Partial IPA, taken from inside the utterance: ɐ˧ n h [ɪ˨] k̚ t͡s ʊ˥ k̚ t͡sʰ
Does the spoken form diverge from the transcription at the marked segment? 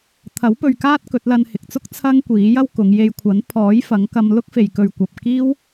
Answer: no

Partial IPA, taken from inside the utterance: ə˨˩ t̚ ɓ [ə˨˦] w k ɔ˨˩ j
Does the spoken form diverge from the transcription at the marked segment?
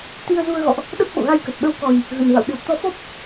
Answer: no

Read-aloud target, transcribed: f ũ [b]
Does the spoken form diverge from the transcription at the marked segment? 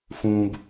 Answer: no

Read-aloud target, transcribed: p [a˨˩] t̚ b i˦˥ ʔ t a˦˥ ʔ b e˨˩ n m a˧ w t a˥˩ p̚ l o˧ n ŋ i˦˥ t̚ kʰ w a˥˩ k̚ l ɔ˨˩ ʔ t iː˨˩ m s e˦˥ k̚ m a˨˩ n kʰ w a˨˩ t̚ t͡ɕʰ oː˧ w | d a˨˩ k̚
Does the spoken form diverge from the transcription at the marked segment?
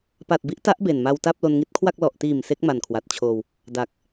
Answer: no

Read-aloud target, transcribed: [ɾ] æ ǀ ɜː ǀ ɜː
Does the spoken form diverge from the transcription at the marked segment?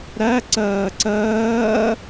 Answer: no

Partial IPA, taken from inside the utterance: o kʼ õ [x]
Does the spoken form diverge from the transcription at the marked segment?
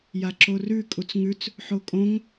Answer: yes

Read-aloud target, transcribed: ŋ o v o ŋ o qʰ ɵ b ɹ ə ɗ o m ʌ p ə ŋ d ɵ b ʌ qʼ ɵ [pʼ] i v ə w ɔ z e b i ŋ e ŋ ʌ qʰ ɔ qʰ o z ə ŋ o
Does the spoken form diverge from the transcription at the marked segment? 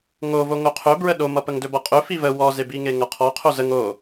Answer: yes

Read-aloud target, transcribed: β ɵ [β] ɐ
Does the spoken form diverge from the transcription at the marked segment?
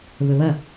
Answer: no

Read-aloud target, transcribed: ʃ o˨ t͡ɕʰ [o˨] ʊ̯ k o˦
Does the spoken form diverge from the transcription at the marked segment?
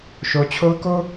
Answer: yes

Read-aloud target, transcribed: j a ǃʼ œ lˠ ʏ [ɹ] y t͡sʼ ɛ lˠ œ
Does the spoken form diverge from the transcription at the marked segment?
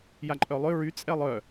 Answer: no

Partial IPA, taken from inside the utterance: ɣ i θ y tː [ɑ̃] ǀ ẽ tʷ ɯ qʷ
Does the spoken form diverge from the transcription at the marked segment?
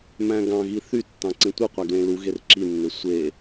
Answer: no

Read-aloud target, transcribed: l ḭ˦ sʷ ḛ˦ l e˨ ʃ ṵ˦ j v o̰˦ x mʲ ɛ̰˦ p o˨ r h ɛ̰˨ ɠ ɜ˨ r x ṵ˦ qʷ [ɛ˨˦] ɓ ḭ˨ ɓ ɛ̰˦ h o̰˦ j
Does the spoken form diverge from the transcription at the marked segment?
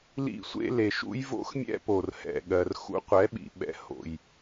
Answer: no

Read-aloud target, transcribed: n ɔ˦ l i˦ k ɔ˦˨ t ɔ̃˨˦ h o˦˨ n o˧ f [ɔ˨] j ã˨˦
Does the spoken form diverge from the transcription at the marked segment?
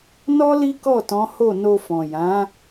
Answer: yes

